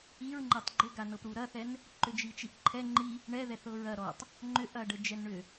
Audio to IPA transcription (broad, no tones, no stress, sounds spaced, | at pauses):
i ɹ ŋ͡ǃ ɛ tˤ ɡ͡ǃ ʏ ɡ a n ɤ p ɾ u ɾ ɐ θ ɛ n | ǃ ʏ d͡ʒ i t͡ʃ i ʔ ǃʰ ɛ ŋ͡ǃ i | ɳ ɛ ð ɛ θ ɤ ɹ ɐ ɾ ɔ tˤ | ŋ͡ǃ ʏ ʔ ɐ ɖ ə d͡ʒ ɛ n ɳ ʏ